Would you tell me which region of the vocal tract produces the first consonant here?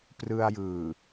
lips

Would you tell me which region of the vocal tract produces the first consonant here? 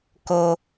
velum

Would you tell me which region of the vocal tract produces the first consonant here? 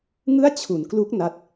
velum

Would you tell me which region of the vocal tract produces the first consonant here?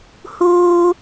throat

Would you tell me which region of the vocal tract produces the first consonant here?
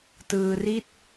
tongue tip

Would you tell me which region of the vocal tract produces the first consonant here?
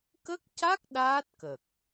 velum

